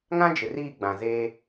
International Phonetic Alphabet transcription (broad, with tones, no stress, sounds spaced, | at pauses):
ŋ ã˦ d͡ʒ ɪ˨ r iː˦˨ ɡ͡b ã˨ z e˦